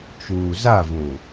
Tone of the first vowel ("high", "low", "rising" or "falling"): low